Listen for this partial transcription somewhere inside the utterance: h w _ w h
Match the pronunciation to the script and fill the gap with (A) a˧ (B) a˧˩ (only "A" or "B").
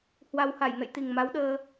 A